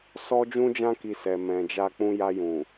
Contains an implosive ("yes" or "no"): no